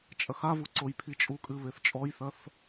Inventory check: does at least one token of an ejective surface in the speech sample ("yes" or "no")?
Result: yes